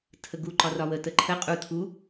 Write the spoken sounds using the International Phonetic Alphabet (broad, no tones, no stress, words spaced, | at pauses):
tʰəɡu ǃɒrɒwə təǃʰə qʼu tʰu